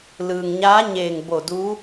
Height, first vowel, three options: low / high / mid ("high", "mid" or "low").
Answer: high